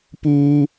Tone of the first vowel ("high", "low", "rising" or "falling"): low